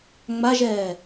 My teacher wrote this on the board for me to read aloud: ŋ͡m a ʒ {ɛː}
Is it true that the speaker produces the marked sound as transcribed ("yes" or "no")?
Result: yes